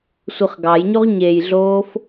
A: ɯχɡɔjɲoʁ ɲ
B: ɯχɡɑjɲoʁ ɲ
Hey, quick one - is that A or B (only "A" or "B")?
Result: B